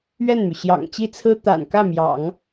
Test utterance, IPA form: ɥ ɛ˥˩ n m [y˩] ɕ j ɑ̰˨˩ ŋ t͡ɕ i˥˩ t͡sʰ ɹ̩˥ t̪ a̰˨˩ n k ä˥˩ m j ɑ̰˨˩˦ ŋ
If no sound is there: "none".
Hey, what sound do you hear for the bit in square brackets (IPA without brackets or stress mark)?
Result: y˩